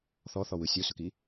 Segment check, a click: absent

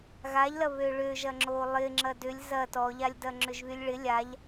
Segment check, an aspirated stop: absent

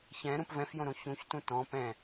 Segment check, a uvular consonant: absent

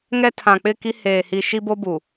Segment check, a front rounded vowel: absent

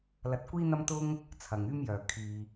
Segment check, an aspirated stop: present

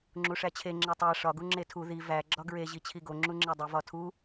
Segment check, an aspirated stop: present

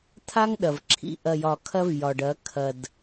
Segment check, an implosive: present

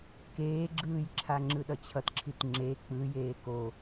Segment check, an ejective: absent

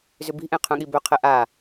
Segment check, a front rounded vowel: present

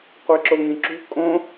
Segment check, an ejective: present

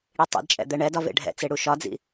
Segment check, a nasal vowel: absent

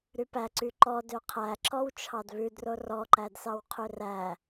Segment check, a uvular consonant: present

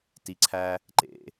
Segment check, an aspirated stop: present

